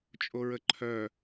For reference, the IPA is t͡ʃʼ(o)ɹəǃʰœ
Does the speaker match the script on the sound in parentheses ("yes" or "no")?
yes